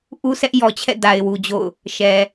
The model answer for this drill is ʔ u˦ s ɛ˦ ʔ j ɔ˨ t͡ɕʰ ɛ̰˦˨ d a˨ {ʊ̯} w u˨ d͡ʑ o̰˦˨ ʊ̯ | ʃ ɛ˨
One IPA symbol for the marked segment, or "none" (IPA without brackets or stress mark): ɪ̯